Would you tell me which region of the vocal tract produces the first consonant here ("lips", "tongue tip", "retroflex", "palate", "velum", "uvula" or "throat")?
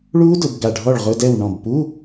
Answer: retroflex